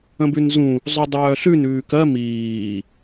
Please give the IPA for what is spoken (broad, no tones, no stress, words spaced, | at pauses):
ə̃bʉnzũ | zˤudˤœːɬʉn ʉːkɜ miː